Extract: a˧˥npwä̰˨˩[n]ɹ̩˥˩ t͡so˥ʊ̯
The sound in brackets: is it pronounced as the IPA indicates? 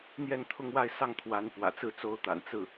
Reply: no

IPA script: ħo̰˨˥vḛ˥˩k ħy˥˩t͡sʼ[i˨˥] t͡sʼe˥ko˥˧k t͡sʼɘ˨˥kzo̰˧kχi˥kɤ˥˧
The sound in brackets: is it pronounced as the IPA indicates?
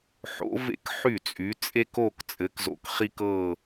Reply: no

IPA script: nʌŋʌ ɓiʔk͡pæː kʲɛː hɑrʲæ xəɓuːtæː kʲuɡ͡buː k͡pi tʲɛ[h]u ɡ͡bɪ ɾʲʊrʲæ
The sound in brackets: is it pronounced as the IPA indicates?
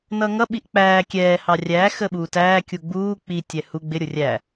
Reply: yes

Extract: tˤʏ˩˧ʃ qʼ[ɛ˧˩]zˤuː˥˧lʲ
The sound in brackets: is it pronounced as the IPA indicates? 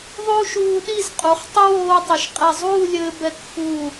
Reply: yes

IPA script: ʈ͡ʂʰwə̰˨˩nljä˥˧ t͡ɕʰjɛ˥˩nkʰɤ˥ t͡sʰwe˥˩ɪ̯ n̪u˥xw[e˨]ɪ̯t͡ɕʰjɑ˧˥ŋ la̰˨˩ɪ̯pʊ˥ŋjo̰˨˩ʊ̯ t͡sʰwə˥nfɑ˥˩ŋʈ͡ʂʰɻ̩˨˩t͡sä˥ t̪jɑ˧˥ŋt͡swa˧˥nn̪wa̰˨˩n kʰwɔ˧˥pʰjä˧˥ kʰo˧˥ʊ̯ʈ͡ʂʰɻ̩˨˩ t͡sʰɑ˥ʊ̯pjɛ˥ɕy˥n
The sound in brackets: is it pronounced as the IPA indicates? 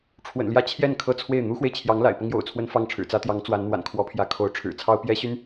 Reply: yes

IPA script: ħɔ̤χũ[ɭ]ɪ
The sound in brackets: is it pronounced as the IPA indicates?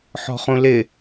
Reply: no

